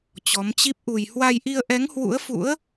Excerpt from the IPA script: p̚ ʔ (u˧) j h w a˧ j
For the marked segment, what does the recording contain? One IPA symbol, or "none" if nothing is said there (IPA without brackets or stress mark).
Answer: u˧